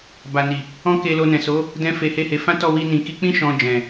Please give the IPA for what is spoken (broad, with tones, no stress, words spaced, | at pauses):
ba˨ ni˨ | ɔ̃˦ke˧ lo˧nɛ̃˨so˨˦ | dɛ̃˦fe˧he˦he˧ fã˦tɔ˦˨wi˧ nĩ˨ki˧k͡pĩ˦ ʃɔ̃˧d͡ʒɛ̃˨